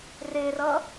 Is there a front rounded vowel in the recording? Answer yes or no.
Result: no